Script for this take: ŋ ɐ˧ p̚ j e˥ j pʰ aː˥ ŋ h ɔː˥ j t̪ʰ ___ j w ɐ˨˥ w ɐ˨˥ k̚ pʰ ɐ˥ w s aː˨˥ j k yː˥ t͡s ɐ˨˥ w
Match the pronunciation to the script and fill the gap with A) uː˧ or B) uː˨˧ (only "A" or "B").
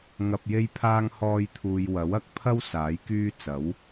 A